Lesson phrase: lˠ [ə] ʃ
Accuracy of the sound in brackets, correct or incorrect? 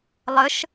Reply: correct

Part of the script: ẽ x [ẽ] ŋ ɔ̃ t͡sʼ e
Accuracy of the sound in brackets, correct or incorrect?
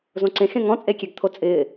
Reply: correct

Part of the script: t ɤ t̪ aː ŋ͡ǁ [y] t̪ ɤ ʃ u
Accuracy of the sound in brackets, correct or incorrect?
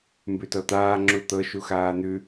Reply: incorrect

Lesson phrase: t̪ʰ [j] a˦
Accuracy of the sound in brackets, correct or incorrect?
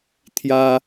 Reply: correct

